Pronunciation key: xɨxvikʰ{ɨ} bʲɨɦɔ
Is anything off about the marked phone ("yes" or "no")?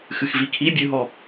yes